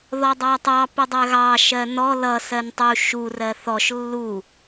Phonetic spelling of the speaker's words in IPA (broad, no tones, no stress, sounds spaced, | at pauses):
ð ɔ dˤ ɑ tˤ ɑ p ɪ dˤ ɜ ɣ ɑ ʃ ɜ n ɔ l ʌ s ɜ n tˤ u ʃ u r ɜ θ ɔ ʃ lː u